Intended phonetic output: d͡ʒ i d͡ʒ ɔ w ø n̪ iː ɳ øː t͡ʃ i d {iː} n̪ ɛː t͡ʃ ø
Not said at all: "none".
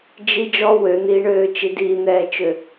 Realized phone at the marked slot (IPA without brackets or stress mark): iː